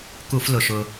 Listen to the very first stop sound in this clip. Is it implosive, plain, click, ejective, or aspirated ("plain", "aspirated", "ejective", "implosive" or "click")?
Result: plain